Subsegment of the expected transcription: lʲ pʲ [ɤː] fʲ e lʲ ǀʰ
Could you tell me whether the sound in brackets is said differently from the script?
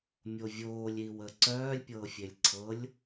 no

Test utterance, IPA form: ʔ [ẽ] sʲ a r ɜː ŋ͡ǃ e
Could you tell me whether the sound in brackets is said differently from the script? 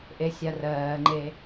yes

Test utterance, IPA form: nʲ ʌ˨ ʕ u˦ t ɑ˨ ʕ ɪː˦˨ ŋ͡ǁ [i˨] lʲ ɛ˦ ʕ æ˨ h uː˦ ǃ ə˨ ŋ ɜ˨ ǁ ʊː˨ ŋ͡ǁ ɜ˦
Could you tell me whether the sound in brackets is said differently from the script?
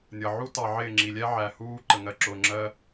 no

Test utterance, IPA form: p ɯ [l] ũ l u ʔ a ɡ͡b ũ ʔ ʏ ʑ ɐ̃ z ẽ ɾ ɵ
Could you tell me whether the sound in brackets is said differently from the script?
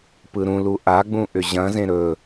yes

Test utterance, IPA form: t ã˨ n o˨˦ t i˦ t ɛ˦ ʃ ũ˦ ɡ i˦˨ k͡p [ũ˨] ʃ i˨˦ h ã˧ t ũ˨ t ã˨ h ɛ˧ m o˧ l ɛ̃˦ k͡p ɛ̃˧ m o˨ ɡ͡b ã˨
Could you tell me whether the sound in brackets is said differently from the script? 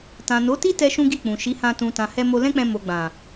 no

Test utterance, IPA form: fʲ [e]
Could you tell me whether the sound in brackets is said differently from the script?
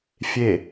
no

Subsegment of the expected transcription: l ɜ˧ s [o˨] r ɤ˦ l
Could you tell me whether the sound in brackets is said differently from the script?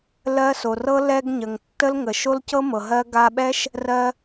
no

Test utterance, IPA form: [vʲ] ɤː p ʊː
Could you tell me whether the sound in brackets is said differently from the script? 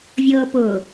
no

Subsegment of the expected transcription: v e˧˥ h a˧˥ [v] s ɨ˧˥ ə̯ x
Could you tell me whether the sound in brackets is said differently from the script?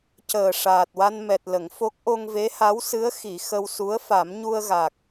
yes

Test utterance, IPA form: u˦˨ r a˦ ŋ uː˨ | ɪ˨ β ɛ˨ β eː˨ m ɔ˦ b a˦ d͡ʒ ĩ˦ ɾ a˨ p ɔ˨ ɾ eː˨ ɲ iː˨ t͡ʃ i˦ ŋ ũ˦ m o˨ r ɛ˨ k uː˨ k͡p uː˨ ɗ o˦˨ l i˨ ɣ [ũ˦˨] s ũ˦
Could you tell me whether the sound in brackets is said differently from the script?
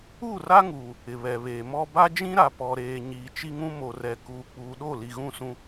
no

